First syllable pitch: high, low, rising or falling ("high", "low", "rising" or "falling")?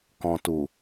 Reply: low